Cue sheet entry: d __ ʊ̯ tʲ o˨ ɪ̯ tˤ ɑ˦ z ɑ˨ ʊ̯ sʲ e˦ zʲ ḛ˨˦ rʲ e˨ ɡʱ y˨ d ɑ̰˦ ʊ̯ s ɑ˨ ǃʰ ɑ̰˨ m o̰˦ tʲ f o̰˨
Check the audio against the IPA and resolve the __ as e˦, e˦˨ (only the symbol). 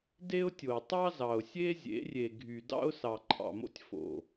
e˦